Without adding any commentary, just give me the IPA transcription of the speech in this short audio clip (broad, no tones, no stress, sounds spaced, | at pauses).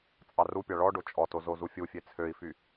t͡sʼ ɑ r u pʲ ɑ ɭ ɔ ɖ o t͡ʃʼ ɔ t o z o z u fʲ u fʲ e t͡sʰ ø i̯ f y